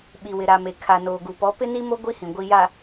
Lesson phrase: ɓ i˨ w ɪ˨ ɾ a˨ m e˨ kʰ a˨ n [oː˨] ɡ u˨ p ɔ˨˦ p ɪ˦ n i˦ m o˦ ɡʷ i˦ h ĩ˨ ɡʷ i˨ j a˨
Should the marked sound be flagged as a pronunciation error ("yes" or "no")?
no